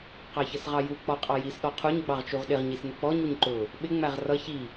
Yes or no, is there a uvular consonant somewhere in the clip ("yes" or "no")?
yes